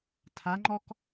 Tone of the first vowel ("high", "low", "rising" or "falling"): rising